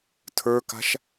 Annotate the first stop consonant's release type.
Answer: aspirated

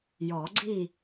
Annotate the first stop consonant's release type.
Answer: click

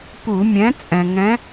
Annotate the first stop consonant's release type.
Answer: plain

